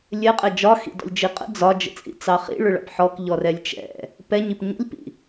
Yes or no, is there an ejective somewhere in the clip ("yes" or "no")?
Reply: yes